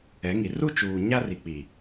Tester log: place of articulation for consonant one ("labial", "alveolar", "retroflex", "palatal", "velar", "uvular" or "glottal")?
velar